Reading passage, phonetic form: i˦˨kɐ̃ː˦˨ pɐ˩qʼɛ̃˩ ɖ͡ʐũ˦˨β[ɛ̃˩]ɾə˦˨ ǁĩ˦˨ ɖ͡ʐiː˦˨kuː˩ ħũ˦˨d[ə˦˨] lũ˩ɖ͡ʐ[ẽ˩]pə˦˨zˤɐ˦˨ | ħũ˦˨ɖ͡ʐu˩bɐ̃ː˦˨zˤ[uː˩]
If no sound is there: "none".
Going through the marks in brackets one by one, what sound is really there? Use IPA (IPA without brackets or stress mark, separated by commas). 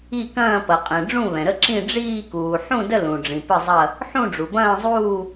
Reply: ɛ̃˩, ə˦˨, ĩ˩, uː˦˨